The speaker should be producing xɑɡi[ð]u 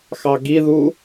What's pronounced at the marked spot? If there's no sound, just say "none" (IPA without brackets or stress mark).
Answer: ð